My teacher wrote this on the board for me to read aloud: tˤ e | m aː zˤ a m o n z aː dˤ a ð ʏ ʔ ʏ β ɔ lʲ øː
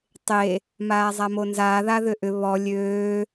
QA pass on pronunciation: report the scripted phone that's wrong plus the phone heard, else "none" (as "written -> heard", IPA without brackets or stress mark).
dˤ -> ð